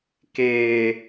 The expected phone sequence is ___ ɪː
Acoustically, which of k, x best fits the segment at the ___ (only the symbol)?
k